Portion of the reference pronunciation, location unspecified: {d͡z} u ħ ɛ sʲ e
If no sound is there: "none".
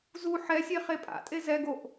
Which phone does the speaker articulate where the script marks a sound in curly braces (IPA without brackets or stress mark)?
z